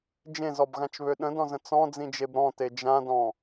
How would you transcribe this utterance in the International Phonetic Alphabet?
d͡ʒ ẽ z ɔ b ɣ ã t͡ʃ β ø ɗ ə̃ d ɔ̃ z ə̃ t͡s ɔ̃ d͡z ĩ d͡ʒ e b ɾ ɔ̃ t e d͡ʒ ã d ɔ̃

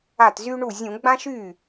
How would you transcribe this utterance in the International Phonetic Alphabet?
a˥˩ t z y˥ ɳ u˥˩ zʲ ũ˧˩˧ ɡ͡b ã˥ ʃ y˥˩

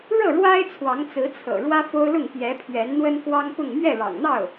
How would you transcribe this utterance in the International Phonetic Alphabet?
ɻ ɤ˥˩ ɻ w a˥ ɪ̯ t͡sʰ w ɑ˧˥ ŋ t͡s ɹ̩˧˥ t͡sʰ ɤ̰˨˩ ɻ w ä˥ f o˥ ʊ̯ l ʊ˥˩ ŋ p j ɛ˧˥ pʰ ɥ ɛ˧˥ n n̪ w ə˥ n k w ɑ˥ ŋ p ʊ˥˧ ŋ m ɥ ɛ˥˩ ɻ ɑ̰˨˩ ŋ n̪ ɑ˥˩ ʊ̯

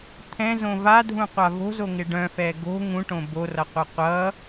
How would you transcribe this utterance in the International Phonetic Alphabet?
t̪ʰ ɛ̃ z õ v a dʱ ũ qʷ a v o̤ z o ŋ ɪ ɖ œ̃ f ɛ ɡ o̤ ŋ ũ ʈ õ b o r ʌ qʷ ɛ qʷ ʌ

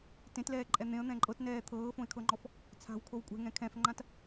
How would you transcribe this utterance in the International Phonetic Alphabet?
t ẽ t l ɛː ǃʼ ɛ n̪ ẽ ə̯ n̪ ɛ̃ ǃʼ ɤ t n ɛː t̪ʰ ɤː f õ ɪ̯ kʰ ɤ ŋ͡ǃ ɔ f | t͡sʰ a̤ w kʰ o w kʷʼ ɛ̤ ŋ ɛ̃ kʰ ɛ̃ f ŋ͡ǃ ã t

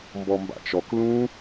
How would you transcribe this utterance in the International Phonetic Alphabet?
m b ɔ m b a̰ t͡ʃ ɔ k l ũ

